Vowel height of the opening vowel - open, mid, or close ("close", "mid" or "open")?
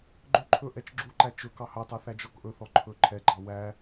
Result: mid